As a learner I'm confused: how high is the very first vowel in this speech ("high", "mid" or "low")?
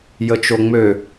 mid